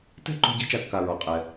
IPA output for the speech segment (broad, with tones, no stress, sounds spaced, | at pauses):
t ɛ̤˥ ǃ ṳ˧ ɟ ɛ̤˥ t͡ʃ a˧ kː a˩ ɹ ɔ˩ qʼ ɛ˩